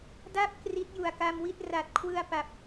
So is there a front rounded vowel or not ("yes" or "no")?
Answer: no